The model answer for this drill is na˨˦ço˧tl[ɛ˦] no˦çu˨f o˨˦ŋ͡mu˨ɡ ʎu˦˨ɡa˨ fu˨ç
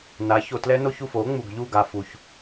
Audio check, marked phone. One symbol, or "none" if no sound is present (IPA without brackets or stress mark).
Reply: ɛ˦